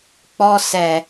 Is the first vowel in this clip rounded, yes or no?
yes